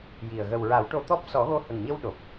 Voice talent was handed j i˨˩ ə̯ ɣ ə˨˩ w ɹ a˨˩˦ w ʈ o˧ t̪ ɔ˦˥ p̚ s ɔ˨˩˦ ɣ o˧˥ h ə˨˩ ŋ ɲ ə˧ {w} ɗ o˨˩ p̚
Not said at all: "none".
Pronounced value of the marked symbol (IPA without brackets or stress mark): w